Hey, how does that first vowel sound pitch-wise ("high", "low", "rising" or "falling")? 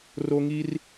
high